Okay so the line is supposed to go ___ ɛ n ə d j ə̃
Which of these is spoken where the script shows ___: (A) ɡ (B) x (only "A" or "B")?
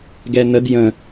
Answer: A